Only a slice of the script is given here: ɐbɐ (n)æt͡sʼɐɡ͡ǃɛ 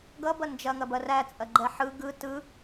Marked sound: incorrect: r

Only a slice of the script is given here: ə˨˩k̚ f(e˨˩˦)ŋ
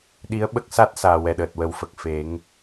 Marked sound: correct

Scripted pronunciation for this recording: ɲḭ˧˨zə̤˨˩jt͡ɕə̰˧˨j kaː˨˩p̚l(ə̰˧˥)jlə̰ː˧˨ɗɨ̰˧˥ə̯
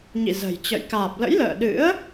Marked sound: correct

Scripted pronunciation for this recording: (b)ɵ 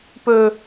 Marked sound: incorrect: p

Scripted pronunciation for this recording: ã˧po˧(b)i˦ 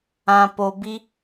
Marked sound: correct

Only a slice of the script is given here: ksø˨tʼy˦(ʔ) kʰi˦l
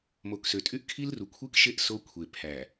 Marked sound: correct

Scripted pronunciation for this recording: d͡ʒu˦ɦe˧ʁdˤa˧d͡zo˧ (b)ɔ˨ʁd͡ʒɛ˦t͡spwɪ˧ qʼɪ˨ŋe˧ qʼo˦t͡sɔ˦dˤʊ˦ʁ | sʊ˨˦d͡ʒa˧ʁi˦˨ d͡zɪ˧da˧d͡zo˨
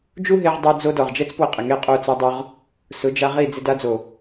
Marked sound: incorrect: d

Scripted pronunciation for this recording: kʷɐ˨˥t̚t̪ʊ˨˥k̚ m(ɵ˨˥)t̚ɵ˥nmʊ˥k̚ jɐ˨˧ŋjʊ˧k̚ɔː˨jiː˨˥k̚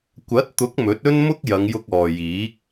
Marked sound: correct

